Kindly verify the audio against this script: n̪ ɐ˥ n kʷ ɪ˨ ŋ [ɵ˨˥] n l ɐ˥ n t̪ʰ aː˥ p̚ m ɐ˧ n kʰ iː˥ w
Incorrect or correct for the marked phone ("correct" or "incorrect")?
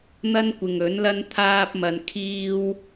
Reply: correct